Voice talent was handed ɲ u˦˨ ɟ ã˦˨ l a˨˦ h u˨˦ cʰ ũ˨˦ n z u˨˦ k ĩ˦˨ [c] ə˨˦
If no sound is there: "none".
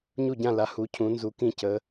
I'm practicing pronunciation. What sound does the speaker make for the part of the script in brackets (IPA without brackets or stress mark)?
c